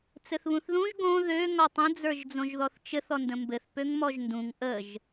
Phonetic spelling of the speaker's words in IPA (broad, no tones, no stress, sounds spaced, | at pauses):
t͡s ɘ θ β ũ θ ð ũ ʒ ɡ õ ð ø ŋ ɔ tˤ ə̃ d͡z ə˞ ʒ d͡z õ ʒ ð ɔ θ t͡ʃ ɘ θ ɔ n d ə̃ m b ɘ θ p ø ŋ m ɔ ʒ n d ũ ŋ ʔ ə ʒ